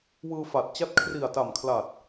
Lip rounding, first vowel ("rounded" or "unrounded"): unrounded